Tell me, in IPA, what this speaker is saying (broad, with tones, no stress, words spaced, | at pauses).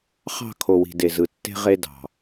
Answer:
χɑ̤˦˨ kʰo˨wi̤˨ de˨zɯ˨tːe̤˦ʁe˦ dɑ̤˨